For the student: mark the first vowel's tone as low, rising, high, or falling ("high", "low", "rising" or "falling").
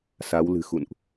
rising